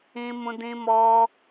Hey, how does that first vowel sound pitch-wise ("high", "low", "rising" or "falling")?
high